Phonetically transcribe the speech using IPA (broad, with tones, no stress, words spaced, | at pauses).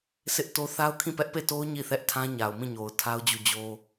sɪ˦ʔto˦ θa˦ʊ̯kʰĩ˦˨pɛ˦ʔ pe˦˨to˦ʊ̯ ɲi˦˨θɛ˦ʔtʰã˦ ɲa˨ʊ̯mĩ˦˨ɲo˨ʊ̯ tʰa˦ʊ̯d͡ʑu˦˨d͡ʑo˦